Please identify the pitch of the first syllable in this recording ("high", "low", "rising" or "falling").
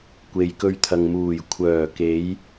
low